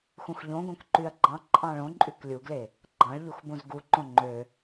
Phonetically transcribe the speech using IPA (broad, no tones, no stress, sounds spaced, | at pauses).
x ũ x ʎ õ ɡ õ k ǃ y ɐ̯ ɡ͡ǃ ɑ̃ ǃʼ ɑ̃ ɭ õ ǃʼ y k lʲ u ɡ l e | ɡ͡ǃ ɑ̃ ɭ ʎ u x b ũ z ɡ u ǃ õ ŋ͡ǃ ø